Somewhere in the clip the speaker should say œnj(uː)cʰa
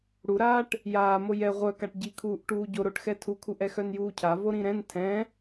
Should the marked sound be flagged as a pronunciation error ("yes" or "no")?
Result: no